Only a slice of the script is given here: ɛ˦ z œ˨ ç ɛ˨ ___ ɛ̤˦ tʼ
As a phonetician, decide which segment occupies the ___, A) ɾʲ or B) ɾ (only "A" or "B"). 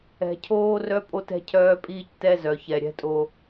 A